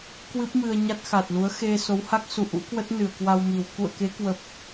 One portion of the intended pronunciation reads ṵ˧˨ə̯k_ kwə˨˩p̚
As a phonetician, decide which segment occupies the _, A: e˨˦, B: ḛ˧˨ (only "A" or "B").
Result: A